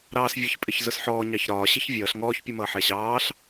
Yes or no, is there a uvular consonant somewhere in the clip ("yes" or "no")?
no